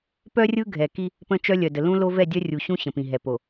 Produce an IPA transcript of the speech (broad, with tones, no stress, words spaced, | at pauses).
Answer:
pœ˦rʲɯ˦ɡʱɛ˨ki˦ | pə̃˦t͡ʃœ˦lʲœ˨də˨ lũ˦lo˦ vɛ˦˨ dʲœ˦rʲu˨ɕũ˦ ɕə̃˨pĩ˨ɦɛ˨ po˨